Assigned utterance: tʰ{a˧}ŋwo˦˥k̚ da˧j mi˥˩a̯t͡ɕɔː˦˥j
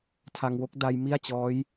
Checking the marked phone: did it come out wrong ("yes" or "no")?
no